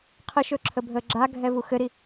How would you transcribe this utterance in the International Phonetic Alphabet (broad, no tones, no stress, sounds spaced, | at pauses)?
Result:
qʰ ə ʃ ɵ ǁʰ ə bʱ əː ɡ͡ǁ a ɡʱ ɛ v u x ɘ ɾ i